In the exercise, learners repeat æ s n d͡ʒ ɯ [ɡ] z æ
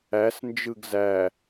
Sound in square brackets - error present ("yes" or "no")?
no